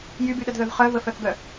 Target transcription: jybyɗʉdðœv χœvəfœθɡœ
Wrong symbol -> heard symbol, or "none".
ʉ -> ə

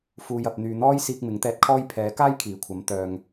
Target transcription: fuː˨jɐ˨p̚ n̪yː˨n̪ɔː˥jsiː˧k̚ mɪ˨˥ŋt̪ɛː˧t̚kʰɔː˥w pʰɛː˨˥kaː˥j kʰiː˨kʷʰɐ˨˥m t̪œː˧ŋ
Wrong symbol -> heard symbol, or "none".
w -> j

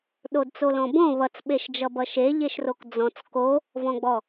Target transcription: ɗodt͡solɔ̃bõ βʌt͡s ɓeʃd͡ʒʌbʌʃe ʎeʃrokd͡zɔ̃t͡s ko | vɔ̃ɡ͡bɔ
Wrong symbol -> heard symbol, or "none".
none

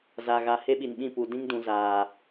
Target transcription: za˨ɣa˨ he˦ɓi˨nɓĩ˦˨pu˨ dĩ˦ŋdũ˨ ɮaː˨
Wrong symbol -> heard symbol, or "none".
ɮ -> z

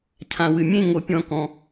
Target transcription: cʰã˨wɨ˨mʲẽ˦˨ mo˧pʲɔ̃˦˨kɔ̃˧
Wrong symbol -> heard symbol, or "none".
m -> ŋ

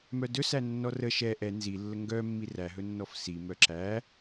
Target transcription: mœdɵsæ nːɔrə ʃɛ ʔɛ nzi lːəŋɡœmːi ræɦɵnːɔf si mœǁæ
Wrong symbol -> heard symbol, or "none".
none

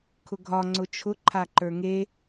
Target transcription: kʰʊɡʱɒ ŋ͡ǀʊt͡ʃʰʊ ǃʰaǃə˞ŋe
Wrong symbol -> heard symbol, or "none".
none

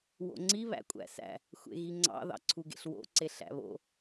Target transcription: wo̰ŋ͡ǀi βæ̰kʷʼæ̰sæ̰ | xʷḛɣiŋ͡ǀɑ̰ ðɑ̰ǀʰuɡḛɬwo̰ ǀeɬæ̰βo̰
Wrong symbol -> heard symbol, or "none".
none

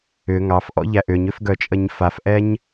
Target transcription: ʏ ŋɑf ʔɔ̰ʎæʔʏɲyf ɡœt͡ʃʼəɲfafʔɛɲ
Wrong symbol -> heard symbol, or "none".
y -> ʏ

